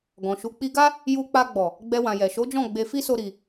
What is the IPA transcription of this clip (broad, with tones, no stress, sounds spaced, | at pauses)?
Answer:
ɡ ɔ̃˨ ʃ u˨˦ k͡p i˧ ɡ a˦ | j u˧ k͡p a˧ ɡ͡b ɔ˨ | ɡ͡b ɛ˧ w ã˨ j ɛ˨ ʃ o˨˦ d͡ʒ ɔ̃˦˨ ɡ͡b e˧ f i˦ s o˧ ɾ i˨